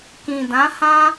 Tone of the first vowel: low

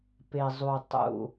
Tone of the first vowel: low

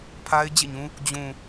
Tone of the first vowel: high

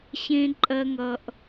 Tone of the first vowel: high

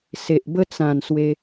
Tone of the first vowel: low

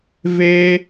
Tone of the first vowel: high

